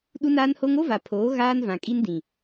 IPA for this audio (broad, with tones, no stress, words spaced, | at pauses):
ɗu˦naː˦nho˦ŋ o˦va˨pʰoː˨˦ ɣaː˦nvã˨kʼi˦n dĩ˨